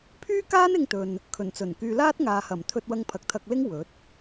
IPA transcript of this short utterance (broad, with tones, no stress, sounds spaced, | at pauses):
pʰ yː˥ k aː˥ n ɪ˧ ŋ t̪ ɵ˨ n | kʰ ɵ˨˩ n t͡s ɵ˨˩ n k yː˧ l aː˥ t̚ ŋ aː˨ h ɐ˨˩ m t̪ʰ ɵ˧ t̚ w ɐ˧ ŋ pʰ ɐ˨ k̚ t̪ʰ ɐ˧ k̚ l ɪ˥ ŋ w ɵ˨˥ t̚